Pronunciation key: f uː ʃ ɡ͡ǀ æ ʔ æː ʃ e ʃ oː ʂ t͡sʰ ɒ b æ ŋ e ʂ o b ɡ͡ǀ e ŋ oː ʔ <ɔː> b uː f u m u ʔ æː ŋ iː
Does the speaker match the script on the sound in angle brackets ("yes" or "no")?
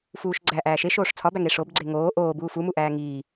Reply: no